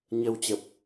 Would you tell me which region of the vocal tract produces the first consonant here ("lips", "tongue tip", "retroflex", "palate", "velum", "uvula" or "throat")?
palate